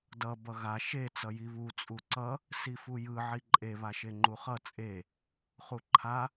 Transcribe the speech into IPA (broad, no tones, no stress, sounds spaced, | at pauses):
d ʌ b ʌ ɣ a ʃ e t͡s ʌ j i β u t͡sʼ u ǀ ʌ | s i f u j ɯ ʕ i ǃʼ e β a ʃ e ŋ͡ǃ u χ ʌ t͡sʼ e | χ u ǃʰ a